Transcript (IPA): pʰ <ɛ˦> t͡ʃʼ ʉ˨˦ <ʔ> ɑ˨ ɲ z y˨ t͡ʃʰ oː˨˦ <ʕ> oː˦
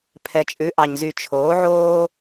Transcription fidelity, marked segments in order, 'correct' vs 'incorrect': incorrect: ɛ˨, correct, correct

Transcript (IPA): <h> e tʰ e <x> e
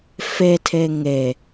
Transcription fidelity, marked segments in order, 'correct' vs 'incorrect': incorrect: f, incorrect: ŋ

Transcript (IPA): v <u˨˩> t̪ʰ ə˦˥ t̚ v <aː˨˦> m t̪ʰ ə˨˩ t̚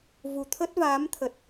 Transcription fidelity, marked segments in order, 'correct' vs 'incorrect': correct, correct

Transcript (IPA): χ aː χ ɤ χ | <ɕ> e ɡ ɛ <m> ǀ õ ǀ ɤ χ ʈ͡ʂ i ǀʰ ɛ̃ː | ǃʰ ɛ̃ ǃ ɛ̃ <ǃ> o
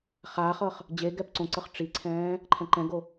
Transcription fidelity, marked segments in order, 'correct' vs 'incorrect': incorrect: d͡ʑ, incorrect: p, incorrect: ɡ

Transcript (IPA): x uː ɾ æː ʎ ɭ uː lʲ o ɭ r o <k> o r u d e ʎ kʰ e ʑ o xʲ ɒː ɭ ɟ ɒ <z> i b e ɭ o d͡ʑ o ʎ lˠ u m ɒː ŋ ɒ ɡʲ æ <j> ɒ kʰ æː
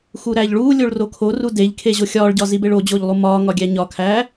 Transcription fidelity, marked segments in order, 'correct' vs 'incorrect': incorrect: kʰ, correct, incorrect: ɲ

